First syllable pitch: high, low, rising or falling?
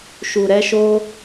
low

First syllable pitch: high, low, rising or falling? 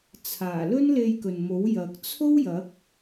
low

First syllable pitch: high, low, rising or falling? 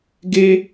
high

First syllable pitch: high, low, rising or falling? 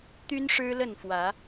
high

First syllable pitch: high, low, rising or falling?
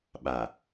low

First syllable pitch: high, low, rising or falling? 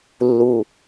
low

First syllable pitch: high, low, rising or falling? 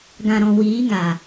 low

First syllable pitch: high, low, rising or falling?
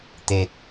low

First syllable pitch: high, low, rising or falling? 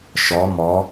rising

